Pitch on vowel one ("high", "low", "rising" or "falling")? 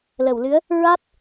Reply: low